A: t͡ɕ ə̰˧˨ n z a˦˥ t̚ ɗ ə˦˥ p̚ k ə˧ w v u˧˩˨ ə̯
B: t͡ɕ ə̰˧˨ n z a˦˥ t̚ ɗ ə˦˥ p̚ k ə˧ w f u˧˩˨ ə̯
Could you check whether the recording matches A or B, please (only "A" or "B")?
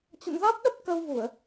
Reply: A